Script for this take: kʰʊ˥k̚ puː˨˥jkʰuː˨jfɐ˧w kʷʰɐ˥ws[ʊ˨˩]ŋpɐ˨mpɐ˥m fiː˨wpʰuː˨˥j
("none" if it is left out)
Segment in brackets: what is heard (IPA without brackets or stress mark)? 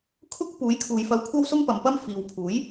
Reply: ʊ˥